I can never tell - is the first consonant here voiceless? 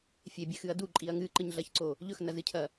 yes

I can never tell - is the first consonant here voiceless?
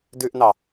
no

